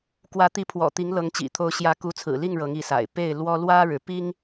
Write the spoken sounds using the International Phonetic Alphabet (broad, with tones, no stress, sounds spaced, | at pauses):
k w ä˨˦ t̪ i˨˦ pʰ w ɔ̰˨˩ t̪ i˨˦ ŋ l ɤ˨˦ ŋ t͡ɕ ḭ˨˩ t̪ʰ o˨˦ ʊ̯ ɕ j ä˨˦ k u˨˦ t͡sʰ ɹ̩˨˩ l i˥˨ ŋ ɻ ɤ˨˦ ŋ i˨˦ s a̰˨˩ ɪ̯ p e˥˨ ɪ̯ l w ɔ˦ l w ä˦ ɻ ɻ̩˨˦ p i˦ ŋ